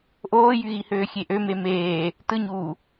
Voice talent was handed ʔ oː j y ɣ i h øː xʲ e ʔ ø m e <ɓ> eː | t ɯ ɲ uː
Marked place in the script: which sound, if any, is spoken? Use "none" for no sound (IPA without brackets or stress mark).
m